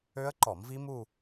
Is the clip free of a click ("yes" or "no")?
no